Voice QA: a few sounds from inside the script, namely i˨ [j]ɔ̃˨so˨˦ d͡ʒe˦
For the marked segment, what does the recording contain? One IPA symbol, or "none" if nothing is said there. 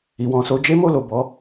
w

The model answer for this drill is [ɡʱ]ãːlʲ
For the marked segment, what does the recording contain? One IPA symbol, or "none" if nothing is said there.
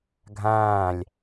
ɡʱ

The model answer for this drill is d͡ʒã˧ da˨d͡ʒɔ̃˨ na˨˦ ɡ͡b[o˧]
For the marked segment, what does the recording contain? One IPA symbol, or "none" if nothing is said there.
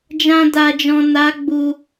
u˧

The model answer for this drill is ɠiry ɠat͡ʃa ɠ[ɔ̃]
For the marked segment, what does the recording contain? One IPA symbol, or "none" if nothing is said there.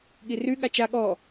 ɔ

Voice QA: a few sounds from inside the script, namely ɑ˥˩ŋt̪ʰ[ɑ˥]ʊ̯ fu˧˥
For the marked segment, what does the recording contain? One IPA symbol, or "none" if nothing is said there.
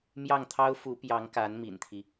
ɑ˥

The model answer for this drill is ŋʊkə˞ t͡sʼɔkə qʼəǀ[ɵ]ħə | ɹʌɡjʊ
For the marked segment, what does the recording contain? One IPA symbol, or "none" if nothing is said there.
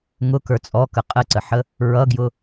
ə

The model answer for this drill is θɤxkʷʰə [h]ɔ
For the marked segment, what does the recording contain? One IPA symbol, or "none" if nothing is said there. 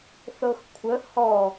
h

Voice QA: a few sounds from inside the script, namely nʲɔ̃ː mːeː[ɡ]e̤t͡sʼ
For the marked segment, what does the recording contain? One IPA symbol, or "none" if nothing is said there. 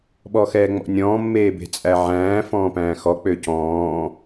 b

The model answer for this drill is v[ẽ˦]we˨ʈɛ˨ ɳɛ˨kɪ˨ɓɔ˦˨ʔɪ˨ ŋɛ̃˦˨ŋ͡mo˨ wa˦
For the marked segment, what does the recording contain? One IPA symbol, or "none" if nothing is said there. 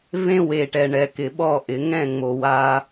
ẽ˦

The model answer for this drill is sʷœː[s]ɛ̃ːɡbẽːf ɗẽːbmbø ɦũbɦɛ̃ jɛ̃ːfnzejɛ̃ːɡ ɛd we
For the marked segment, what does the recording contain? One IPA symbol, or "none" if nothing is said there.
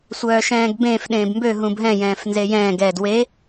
ʃ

